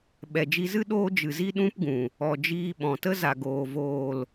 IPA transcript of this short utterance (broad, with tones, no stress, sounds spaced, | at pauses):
ɓ ɛ˨ d͡ʒ i˧ z ɨ˦ ɗ oː˦ d͡ʒ ɨ˨ z i˦ ɗ ũ˦ p ɡ ũ˨ | ɔ˨ d͡ʒ iː˧ ɓ ɔ̃˨ t ə˦ z a˨ ɡ oː˨ v oː˨ l